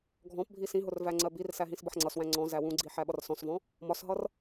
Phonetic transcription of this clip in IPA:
ɡʱ ɔ̃ p bʱ i s ĩ ɦ ʊ r v æ ŋ͡ǀ ɜ b i r s æ ɦ ĩ s b ʌ ħ ŋ͡ǀ ʌ s w æ̃ ŋ͡ǀ ɔ̃ z æ w ũ ɡ͡ǀ i ħ æ ɓ ʌ r s ɔ̃ s v ɔ̃ | m ɒ s ɦ ʌ r

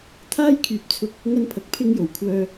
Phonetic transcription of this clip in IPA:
t̪ʰ aː˥ j kʰ yː˨ p̚ t͡sʰ ʊ˧ k̚ | ŋ ɐ˥ n pʰ ɐ˨ k̚ pʰ ɪ˥ ŋ j o˨˩ w kʷʰ œː˧

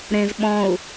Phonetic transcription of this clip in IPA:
ɾ ẽ z ɓ ɔ̃ u̯

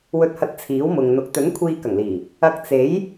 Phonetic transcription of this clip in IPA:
w ɵ˧ t̚ h ɐ˧ t̚ t͡sʰ iː˨˥ w m ʊ˨ ŋ n̪ ʊ˨˥ k̚ t̪ ɵ˨˥ n kʷʰ iː˧ k ɐ˨˩ ŋ l iː˨˩ | ɐ˧ k̚ t͡s e˨˥ j

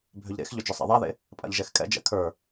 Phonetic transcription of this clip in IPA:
bʱ ʏ ʎ ɾ ḛ x ʎ ʏ d͡ʒ ʏ sˤ a̰ ðˤ a ð ḛ | pʼ a̰ ʎ ʒ ɛ x kʼ ɛ̰ d͡ʒ ɛ̰ kʰ ə˞

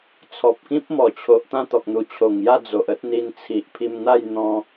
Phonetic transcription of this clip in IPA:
t͡sʰ ɔ˨ p̚ k ĩ˦ p̚ m ɔ˨˩ t͡ɕʰ o˨ ʔ t̪ ã˥˧ t̪ ɔ˨ k̚ n̪ u˨˩ t͡ɕʰ o˨˩ ŋ j a˥˧ d͡z o˨ ʔ ə˦ t̚ n̪ i˧ n t͡sʰ i˨ ʔ pʰ i˧ m n̪ a˥˧ j n̪ ɔ̃˧

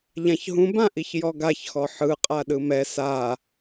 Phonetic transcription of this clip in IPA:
ʎ ã ç ɦ ũ b ã ʔ i ç j ɔ ɡ a ç x ɔ ħ ɯ qʼ a ɗ ɯ m ɛ s a

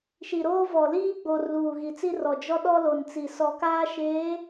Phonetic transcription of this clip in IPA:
ʃ i˨ ɾ oː˦ v ɔ˨ l iː˦ ɡ͡b o˨ r l uː˨ ɣ i˨ t͡s i˦ r ɔ˨ d͡ʒ ɔ˦ ɗ ɔ˦ l o˨ n t͡s i˨ s ɔ˨ k aː˦ ʃ eː˨˦

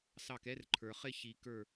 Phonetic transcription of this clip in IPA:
s ɑ˧˩ k ɛ˦ r ǃʰ ə˞˩ χ ɪ˥˨ ç i˨˩˦ k ə˞˧˩

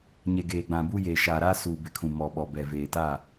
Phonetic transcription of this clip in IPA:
ɲ e˨ ɡ eː˨ ɡ͡b ã˨ b uː˦ j eː˨ ʃ aː˨ ɾ aː˦ s uː˨ b ɪ˨ kʰ ũ˨ m ɔ˨ ɓ ɔ˨ b ɛ˨ v eː˨ t a˦˨

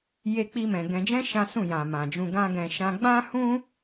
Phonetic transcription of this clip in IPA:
j e˦ k͡p i˦ m ɛ̃˧ ɡ ɛ̃˧ d͡ʒ ɛ̃˦ ʃ ã˦ s ũ˦˨ j ã˨ m ã˨ d͡ʒ ũ˧ ɡ ã˦ ɡ ɛ̃˧ ʃ ã˧ ɡ͡b ã˦ h ũ˦

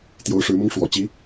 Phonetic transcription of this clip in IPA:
t̪ j o˧˥ ʊ̯ ʂ ɻ̩˧˥ m ʊ˥ ŋ ʂ w ɔ̰˨˩ t͡ɕ i˧˥

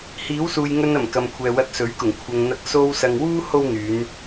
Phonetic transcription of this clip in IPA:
h iː˨˥ w s uː˨ j ŋ ɵ˧ n ɐ˨˩ m k ɐ˨ m kʷʰ ɛː˨ w ɐ˧ t̚ s ɵ˨˥ ɥ k ʊ˨˩ ŋ kʷʰ ɐ˨ ŋ n̪ ɐ˧ k̚ s o˧ w s ɐ˨ ŋ w uː˥ h o˥ w n̪ yː˨˧ n

